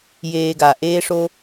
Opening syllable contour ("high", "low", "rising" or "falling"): low